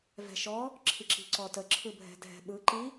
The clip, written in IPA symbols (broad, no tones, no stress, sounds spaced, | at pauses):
v ɛ̤ ʃ ɔ | ǁʰ i ǁ i̤ ǀ ɔ t ə ǁʰ ɯ bʱ ɛ̤ dʱ ɛ̤ ɓ ɯ ǃ i